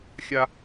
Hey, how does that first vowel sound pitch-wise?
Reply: high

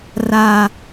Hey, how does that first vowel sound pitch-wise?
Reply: low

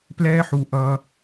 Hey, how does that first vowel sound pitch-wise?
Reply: high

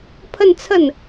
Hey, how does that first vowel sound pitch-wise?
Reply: falling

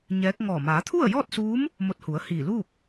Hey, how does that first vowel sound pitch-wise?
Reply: rising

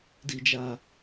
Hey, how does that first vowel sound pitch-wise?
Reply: low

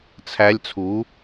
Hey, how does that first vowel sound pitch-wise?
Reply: rising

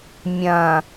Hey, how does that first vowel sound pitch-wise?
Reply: low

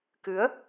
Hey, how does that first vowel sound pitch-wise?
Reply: rising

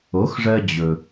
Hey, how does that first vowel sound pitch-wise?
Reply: rising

